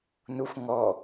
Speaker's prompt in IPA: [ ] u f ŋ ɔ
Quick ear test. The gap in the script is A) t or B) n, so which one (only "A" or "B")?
B